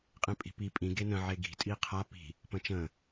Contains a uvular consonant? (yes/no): yes